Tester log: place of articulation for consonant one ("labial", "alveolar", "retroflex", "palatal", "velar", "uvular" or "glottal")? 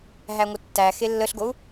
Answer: glottal